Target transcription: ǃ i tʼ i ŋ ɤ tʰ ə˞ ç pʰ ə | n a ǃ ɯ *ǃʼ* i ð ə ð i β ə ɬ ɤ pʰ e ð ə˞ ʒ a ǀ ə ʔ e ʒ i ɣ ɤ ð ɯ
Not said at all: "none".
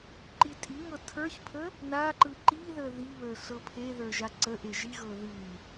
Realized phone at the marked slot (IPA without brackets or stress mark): ǃ